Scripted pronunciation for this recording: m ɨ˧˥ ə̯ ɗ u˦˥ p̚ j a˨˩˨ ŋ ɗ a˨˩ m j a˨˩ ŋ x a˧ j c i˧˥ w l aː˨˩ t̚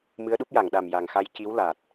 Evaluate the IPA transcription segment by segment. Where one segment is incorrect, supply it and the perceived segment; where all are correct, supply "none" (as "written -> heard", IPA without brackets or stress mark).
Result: none